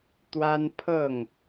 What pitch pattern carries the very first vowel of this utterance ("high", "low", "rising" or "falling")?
high